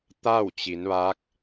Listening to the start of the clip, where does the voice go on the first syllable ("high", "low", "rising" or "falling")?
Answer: falling